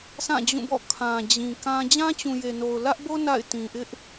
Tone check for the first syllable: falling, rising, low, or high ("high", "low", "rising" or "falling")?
falling